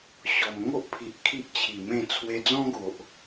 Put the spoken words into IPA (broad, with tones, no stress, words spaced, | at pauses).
ɕɔ˨˩m ŋo˦ʔpʰi˨ʔ kʰi˦ʔt͡ɕʰi˨˩ mẽ˥˧ t͡sʰwe˧d͡zɔ̃˦ɡo˨ʔ